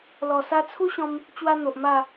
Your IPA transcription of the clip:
lɔ˨˩ sa˧t͡sʰu˦ɕɔ̃˧m | t͡ɕwa˦n̪o˨ʔma˥˧

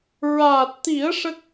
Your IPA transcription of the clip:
ɹaː˨˩t̚t̪i˨˩˦ə̯ ʂə˦˥k̚

